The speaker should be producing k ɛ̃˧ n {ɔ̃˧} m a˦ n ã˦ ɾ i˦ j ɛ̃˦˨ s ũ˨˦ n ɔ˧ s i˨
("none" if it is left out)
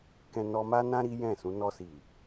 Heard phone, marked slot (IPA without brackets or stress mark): ɔ˧